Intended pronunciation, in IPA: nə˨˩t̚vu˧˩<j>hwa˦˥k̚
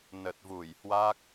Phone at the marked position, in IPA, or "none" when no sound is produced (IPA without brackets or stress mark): j